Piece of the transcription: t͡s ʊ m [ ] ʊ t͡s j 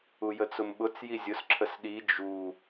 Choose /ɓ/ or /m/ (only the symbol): ɓ